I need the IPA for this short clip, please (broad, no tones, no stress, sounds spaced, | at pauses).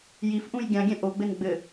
j i f ʔ ũ j ɡʲ ã ɡʲ ɛ̃ ʔ o ɡ͡b ɘ n ɡ͡b ɘ